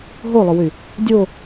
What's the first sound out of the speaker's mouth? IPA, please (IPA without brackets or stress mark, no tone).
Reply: ɦ